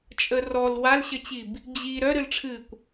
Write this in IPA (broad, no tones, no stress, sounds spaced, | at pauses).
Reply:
t͡ʃʼ ə r ɔ l w a l ɕ ə t͡ɕ i b | d͡ʑ i ɾ œ ɾ ɨ l ʈ͡ʂʰ ɨ kʷ